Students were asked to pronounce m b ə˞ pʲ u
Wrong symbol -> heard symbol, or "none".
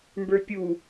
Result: none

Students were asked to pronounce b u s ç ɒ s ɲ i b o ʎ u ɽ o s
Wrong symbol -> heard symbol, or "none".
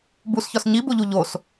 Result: ɽ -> ʎ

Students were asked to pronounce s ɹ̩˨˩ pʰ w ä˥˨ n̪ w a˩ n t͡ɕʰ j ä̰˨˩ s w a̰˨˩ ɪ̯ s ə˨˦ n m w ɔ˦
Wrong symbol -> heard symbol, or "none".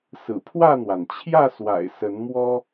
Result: ä̰˨˩ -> ä˥˨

